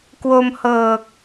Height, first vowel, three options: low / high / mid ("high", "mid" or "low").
mid